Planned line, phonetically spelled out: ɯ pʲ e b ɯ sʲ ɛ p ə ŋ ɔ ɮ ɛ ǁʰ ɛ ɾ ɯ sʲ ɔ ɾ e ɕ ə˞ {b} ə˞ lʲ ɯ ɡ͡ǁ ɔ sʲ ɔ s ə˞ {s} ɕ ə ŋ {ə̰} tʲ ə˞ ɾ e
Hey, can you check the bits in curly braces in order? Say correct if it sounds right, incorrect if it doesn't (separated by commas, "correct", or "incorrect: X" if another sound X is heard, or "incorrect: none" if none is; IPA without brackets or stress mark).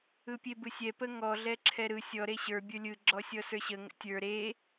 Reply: incorrect: bʲ, incorrect: none, correct